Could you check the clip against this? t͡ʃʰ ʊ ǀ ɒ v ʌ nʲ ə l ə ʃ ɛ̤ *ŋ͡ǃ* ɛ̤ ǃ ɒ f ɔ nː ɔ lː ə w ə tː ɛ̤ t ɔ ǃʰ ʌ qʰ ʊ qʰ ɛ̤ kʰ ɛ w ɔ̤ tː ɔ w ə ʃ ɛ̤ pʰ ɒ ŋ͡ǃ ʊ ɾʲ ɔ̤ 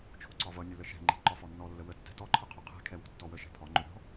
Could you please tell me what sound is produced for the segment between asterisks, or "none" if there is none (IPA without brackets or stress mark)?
ŋ͡ǃ